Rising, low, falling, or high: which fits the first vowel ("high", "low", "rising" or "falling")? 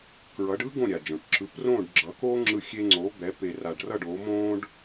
rising